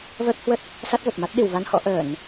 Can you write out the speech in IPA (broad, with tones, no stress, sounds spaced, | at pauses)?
v əː˦˥ k̚ h w ə˦˥ t̚ | s a˦˥ t̚ v ə˨˩ p̚ m a˦˥ t̚ ɗ i˧˩ w v a˧ n h ɔ̰˧˥ ʔ əː˧˩˨ n